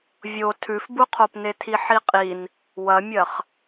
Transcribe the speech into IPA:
vʲo tʰʉfbuqʰopne tʰiħiqʼin | wɐmʲɐχ

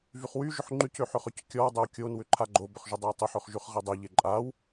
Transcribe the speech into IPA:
vyχwy ʒʏħŋ͡ǃyc øħøχøckʲɔw dˤøwkʲon wʏǃʰaɡ͡ǃo bʏχʒʏdˤowtˤoħ øχʒyχʁedˤe ʎeǃʼaw

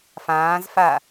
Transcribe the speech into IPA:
fãːzfa

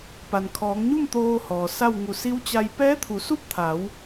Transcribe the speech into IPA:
pa˩nkʰɔː˩˧ŋɲu˥˨m t̪oː˧ hɔː˩sa˥˨wŋu˧˩ si˧˥wt͡ɕa˧j pɛː˧˥t̪ʰu˩˧su˥˨p̚t̪ʰa˩˧w

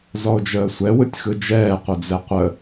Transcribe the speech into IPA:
zɔo̯d͡ʒəːsʷɛ wɯtʲxɯd͡ʒɛː qʷɯd͡zɛqʷə

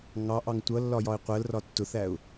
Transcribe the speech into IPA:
ŋɑʔɑŋ tʷʌlːɒ jɒɪ̯qʷɜlrɒ tːʊθæʊ̯

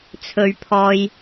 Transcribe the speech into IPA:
t͡sʰɵ˧ɥpʰɔː˧j

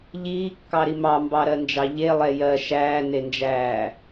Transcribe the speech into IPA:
ʎiːkːɑɾi mɑmbɑɾɜnd͡ʒɑ ʎelˠɛ jɜ ʃæːnend͡ʒæː

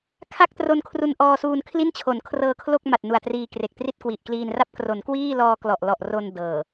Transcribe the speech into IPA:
kʰa˥˩k̚tro˧nkʰru˧n ʔɔː˧suː˧n kʰli˥˩nt͡ɕʰo˩˦n kʰrɤː˧kʰlo˥˩k̚ma˨˩t̚ nu˨˩a̯triː˧kre˨˩k̚tri˥˩t̚ kwi˨˩ʔkliː˧nra˥˩p̚ kro˩˦nkwiː˥˩lɔː˧ klɔ˨˩ʔlɔ˨˩ʔro˧n dɤː˨˩

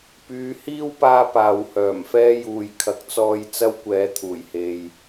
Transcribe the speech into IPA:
pyː˨˧hiː˥wpaː˧ paː˨whœː˨˩mfɛː˥juː˨j kʰɐ˨˥k̚t͡sɔː˧j t͡sɐ˥wkʷɛː˨˥ t̪ʰuː˨˩jhe˨j

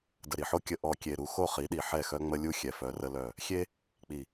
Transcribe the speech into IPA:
də˨ɾi˨ħo˦ kʲə˨ ʔɔ˨kʲe˨ɾu˨ xo˦˨χi˨˦ɗi˨ ħɛ˦˨xœ˦ŋ͡mə˦lʲu˦ xʲɛ˨fœ˨˦rə˦lœ˦˨ | xʲe˦ | k͡pi˨

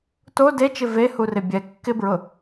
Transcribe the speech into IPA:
to det͡ʃɪ vehurɪ bʲɛ kːɪbɹʊ

